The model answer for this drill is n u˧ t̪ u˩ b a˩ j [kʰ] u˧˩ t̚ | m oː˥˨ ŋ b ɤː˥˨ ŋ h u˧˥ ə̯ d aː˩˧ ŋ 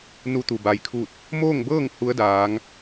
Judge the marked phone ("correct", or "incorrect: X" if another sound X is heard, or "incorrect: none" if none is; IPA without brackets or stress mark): correct